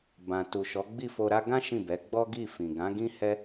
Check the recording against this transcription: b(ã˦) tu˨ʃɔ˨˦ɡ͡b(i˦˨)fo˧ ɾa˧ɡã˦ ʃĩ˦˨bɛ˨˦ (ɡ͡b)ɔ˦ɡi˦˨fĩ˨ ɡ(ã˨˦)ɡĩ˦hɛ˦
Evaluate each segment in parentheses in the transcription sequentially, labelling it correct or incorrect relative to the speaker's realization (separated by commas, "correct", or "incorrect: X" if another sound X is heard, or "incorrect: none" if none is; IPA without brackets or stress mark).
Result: incorrect: ã˨, correct, correct, correct